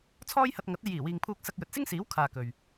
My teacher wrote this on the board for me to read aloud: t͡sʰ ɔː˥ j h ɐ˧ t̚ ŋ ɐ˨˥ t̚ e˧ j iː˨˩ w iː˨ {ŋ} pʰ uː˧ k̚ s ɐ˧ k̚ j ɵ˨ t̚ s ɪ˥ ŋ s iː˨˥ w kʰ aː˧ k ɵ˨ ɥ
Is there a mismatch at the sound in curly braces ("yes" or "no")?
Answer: no